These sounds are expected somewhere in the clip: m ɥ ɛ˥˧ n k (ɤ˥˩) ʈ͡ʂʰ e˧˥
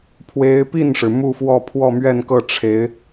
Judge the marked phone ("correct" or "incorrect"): correct